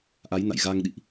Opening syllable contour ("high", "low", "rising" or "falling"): rising